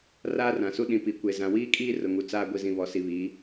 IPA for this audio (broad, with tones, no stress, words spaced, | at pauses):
raː˦rã˨su˦ ɗĩ˨pi˨kʷe˨ zã˨wiː˦kʼiː˦ rʊ˨ŋu˨t͡saː˦ ɡʷi˨zĩ˨ βɔ˨si˨βiː˨˦